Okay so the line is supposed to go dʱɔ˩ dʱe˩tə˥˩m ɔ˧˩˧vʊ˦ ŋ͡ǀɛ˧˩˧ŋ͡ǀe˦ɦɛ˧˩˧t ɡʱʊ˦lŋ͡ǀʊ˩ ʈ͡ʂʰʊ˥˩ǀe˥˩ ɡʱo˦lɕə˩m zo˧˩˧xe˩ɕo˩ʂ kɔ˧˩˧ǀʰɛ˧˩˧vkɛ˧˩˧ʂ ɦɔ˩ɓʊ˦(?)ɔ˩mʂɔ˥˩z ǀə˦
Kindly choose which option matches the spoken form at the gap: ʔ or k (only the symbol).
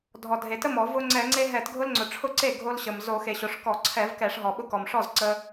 k